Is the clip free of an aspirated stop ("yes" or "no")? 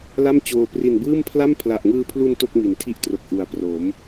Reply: no